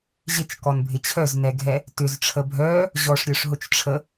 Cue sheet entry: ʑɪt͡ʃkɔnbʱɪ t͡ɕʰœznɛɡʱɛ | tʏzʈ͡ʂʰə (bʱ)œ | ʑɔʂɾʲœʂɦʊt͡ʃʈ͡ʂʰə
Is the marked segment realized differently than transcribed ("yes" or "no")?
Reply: no